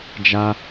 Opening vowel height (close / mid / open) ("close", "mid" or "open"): open